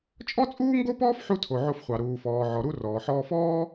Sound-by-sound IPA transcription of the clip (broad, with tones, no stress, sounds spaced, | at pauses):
t͡ʃʼ ɔ˥ t͡sʼ uː˥ ŋ ɡ o˥ p ɔː˥ f ħ u˥ tʰ o˩ ʕ o˧ f χʷ ɑ˩ ɾ uː˩ f ɔː˩ ʕ ɔ˩ ɾ u˧ r ɔː˩ ħ ɔː˧ f ɔː˥